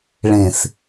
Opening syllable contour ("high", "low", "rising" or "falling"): low